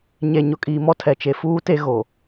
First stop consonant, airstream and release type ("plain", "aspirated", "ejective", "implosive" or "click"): ejective